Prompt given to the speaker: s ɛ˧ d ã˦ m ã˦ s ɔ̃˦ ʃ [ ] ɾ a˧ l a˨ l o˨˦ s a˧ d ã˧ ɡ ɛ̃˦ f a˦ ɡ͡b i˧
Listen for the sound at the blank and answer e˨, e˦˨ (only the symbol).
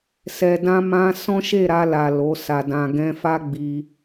e˦˨